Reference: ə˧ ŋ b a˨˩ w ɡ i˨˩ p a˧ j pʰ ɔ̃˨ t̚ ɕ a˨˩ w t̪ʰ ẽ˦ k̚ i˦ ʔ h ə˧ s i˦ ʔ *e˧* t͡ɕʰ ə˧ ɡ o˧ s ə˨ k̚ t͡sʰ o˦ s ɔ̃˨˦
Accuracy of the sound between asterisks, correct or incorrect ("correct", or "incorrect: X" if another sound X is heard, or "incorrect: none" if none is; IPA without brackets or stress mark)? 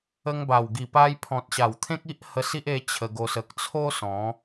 correct